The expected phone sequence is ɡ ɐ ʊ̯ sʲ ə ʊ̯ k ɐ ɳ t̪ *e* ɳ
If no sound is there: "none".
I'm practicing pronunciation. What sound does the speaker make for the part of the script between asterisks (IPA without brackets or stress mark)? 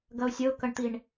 i